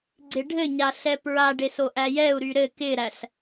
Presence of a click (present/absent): present